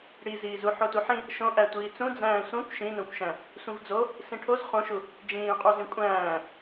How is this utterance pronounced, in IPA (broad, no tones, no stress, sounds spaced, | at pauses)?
ɽ i z iː z u ħ o t u ħ ĩ | ʃ õ ʔ æ tʷ iː t͡s ũ d͡z æ̃ː sʷ ẽ kʷ ʃ ĩ n õ kʷ ʃ æ̃ | sʷ ĩ v d͡z o | s ĩ ʈʰ o z χ õ ʃ u | d͡ʒ ĩː qʼ u z ĩ kʷʼ æ̃ː